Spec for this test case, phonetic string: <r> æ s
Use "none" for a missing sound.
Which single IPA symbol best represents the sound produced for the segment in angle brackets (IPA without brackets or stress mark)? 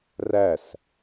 r